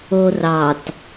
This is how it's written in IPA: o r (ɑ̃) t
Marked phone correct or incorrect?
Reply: incorrect